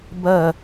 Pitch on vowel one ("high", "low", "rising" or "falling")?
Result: falling